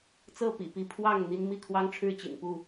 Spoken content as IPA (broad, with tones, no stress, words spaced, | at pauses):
t͡sɤ˥˨pḭ˨˩pi˨˦ pʰwɑ˥˨ŋ n̪i˦n mi˥˨kʰwɑ˦ŋʈ͡ʂʰɻ̩˥˨ t͡ɕḭ˨˩npu˥˨